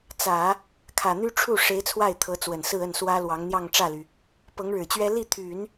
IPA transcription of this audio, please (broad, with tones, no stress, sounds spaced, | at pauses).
t͡s ä˨˩˦ | kʰ ä˨˩ n̪ y˥ ʈ͡ʂʰ u˥˩ ʂ e˧˥ ɪ̯ t͡sʰ w a˥˩ ɪ̯ t̪ʰ ɤ˧˥ t͡s w ə˨˩ n s ɹ̩˥˧ ə˥˩ n s w ä˥ l w ɑ˧˥ ŋ n̪ j ɑ˥˧ ŋ ʈ͡ʂ ä˥˩ l y˩ | p ɤ˧˥ ŋ ɻ ɻ̩˨˩ t͡ɕ ɥ ɛ˥ l i˥˩ t̪ʰ y˨˩˦ n